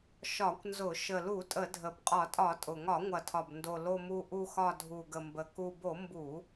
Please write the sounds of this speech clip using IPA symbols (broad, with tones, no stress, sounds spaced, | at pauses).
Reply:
ʃ ɒ˧˩˧ kʷ n z ʊ˧˩˧ ʃ ə˨˩ l u˧˩˧ tʼ ə˧˩˧ dʱ ə˨˩ b qʼ ɒ˧˩˧ tʼ ɒ˧˩˧ tʼ ʊ˨˩ ŋ ɒ˧˩˧ ŋʷ ɐ˨˩ tʰ ɒ˨˩ b n d o˨˩ l o˨˩ m u˨˩ ʔ u˨˩ x ɒ˨˩ dʱ u˨˩ ɡ ə˨˩ m b ə˨˩ k u˨˩ b o˧˩˧ m b u˧˩˧